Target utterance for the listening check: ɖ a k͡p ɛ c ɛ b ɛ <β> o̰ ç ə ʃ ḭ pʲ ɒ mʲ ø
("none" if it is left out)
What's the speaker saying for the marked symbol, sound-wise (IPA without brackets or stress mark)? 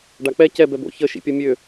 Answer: b